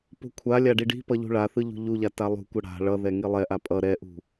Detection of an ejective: present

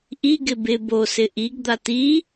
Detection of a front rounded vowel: absent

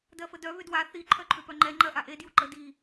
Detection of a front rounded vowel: present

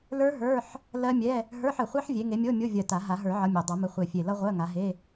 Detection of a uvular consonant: present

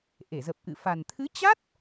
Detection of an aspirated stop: present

